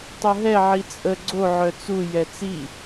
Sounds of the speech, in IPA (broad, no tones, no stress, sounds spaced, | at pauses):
tˤ o ɦ ɛ ʕ i t͡sʼ ə ɡ͡ǀ o ʕ œ t͡s u j ɛ t͡s i